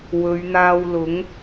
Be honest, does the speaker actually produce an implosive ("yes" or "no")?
no